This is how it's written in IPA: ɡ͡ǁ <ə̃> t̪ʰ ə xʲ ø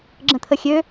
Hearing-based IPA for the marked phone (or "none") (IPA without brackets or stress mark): ə̃